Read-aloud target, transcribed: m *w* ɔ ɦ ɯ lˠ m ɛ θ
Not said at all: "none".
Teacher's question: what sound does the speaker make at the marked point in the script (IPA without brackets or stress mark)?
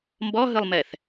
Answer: b